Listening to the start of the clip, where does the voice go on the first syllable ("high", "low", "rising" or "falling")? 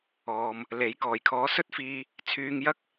low